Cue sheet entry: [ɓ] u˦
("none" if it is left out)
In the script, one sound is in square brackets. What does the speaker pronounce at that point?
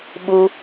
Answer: ɓ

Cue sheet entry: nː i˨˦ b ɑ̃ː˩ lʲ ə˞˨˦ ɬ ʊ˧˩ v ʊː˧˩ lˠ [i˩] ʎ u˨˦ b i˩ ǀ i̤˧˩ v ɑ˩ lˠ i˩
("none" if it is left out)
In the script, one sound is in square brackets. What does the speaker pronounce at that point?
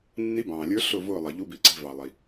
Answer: i˩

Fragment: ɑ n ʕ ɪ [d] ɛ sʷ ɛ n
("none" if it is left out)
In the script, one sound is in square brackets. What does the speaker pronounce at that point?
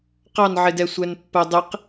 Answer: d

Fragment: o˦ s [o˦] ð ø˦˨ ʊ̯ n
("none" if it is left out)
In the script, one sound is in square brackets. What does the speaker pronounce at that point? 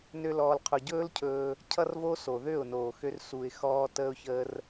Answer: o˨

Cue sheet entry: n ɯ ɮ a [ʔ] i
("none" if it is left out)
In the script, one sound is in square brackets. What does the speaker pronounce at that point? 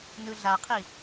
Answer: qʰ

